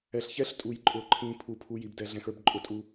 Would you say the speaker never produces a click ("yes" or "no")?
no